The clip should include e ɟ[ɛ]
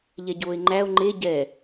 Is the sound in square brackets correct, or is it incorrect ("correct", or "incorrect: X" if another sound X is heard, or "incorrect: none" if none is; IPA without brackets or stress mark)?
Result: correct